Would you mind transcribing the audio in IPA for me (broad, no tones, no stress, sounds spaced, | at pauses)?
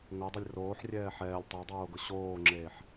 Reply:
ŋ o dˤ ʊ lʲ r oː ħ rʲ ɛː ħ ɛː lʲ tˤ ɛ dˤ oː ɡ ʊ ɕ oː ŋ͡ǁ eː ħ